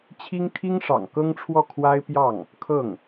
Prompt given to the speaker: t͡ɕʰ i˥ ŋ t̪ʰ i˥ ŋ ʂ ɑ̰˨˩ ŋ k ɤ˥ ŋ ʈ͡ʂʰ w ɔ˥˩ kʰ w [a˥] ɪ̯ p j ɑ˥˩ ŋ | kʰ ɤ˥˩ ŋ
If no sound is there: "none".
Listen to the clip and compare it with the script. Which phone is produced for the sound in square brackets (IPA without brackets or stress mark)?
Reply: a˥